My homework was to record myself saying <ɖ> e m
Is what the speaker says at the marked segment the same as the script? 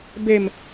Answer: no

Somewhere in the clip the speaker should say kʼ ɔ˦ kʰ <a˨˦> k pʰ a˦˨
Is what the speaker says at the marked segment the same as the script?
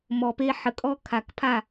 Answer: no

